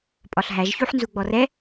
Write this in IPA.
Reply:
pʼ ɒ ɬ ɦ æ ʒ ç u ħ n z u ɡ͡b ɔ r ɛ

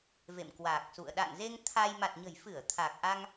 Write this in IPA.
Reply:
v ḛ˧˨ m k w aː˨˩ k̚ s ṵ˧˨ ə̯ ɗ a̰˧˨ n z e˧ ŋ t̪ʰ a˧ j m a˨˩ t̚ ɲ ə̤˨˩ j f ɨ˧˩ ə̯ t̪ʰ a˨˩ k̚ ʔ a˧ ŋ

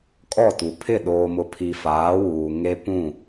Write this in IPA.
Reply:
kʼ ɔ˦˨ t u˨ pʰ ɪ˦˨ ɗ oː˨ m ʊ˨ pʰ i˨ f aː˨˦ w uː˨ ŋ e˦ p ũ˦˨

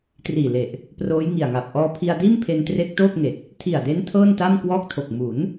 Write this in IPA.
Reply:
t r iː˨˩ l e˨˩ ʔ | p r oː˦˥ j ŋ i˨˩ a̯ ŋ a˨˩ p̚ ʔ ɔː˧ pʰ i˧ a̯ d iː˥˩ m pʰ e˧ n t r e˦˥ k̚ t oː˥˩ p̚ ŋ e˨˩ k̚ | tʰ i˨˩ a̯ d e˦˥ n tʰ ɤː˥˩ n t a˥˩ m k w ɔː˥˩ k̚ tʰ o˨˩ k̚ m u˩˦ n

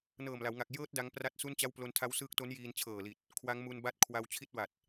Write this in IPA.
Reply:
n ɤː˨˩ m l a˩˦ w ŋ a˨˩ k̚ j ɤː˦˥ t̚ d a˦˥ ŋ p r a˥˩ t̚ s u˥˩ n t͡ɕ a˥˩ w p l o˧ n tʰ a˦˥ w s ɯː˦˥ k̚ t o˦˥ n j iː˧ n t͡ɕʰ ɤː˨˩ l i˨˩ t̚ | kʰ w a˦˥ ŋ m u˧ n b a˥˩ t̚ kʰ w a˧ w t͡ɕʰ i˥˩ t̚ w a˨˩ t̚

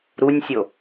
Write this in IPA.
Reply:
ɾ u nʲ sʲ o

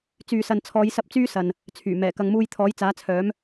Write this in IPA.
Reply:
t͡s yː˨ s ɐ˨ n t͡sʰ ɔː˨˧ j s ɐ˧ p̚ t͡s yː˥ s ɐ˨ n | t͡sʰ yː˨˩ m ɛː˨˩ k ɐ˨ ŋ m uː˧ j t̪ʰ ɔː˨˥ j t͡s aː˨˥ t͡sʰ œː˨˥ m

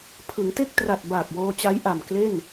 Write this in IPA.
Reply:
pʰ ɯ˩˦ ŋ t e˥˩ k̚ t r a˨˩ t̚ b aː˨˩ k̚ w oː˧ t͡ɕ a˦˥ j ʔ a˨˩ m k l e˥˩ n

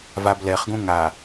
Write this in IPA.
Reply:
v a b l ɛ χ ɡ ũ ŋ a

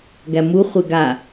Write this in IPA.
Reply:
ɡ æ m u χʷ e ɡ a

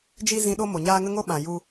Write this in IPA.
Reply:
d͡ʒ i˦ z ĩ˧ ɗ o˦ m o˨ ɲ aː˦ ŋ ə˦ ŋ o˦ ɓ ã˨ j u˧

